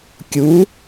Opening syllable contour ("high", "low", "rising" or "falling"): rising